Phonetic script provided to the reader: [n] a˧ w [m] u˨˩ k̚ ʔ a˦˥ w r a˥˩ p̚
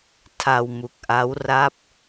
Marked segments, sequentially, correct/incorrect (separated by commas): incorrect, correct